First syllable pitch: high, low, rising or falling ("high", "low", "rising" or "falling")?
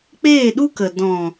falling